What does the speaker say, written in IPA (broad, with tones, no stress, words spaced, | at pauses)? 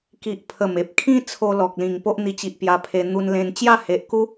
ki˨ʔ pʰə˨˩me˨p̚kʰĩ˦ t͡sʰo˦lɔ˨k̚ lĩ˨˩ŋpo˦ʔn̪i˧t͡ɕi˨ʔ pja˧pʰe˧ n̪u˧nlẽ˧n t͡ɕja˥˧he˨ʔku˦